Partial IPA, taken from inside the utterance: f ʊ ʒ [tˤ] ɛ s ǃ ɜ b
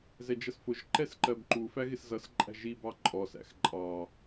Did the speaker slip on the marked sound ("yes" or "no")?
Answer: yes